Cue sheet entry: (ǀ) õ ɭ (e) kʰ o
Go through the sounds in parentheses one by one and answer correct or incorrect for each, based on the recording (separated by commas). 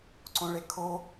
correct, correct